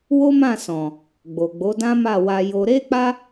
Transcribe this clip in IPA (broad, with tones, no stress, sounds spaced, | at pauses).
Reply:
w o˦ m ã˦˨ s ɔ̃˨ | ɡ͡b o˨ ɡ͡b o˨˦ d ã˦ m a˦˨ w a˧ j o˧ ɾ e˦ k͡p a˦